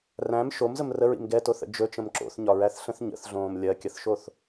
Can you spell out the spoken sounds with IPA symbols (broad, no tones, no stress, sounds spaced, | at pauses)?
r æ̃ m ʃ o m z ə m r ə ɹ ḭ m ɡ ɛ t o θ ə̰ d͡ʒ ɵ t͡ʃ ə̃ m ǁ o̰ θ ɲ ɒ ɹ æ θ ɬ ə̃ θ ɲ ə̰ θ ɮ õː m lʲ ɜ kʲ ə θ ʃ o θ